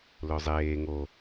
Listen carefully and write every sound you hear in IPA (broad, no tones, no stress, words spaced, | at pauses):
lɵzˤeː ŋo